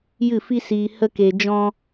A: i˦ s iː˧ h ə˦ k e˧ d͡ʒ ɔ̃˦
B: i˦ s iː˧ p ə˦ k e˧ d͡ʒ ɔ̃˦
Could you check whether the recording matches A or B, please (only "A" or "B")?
A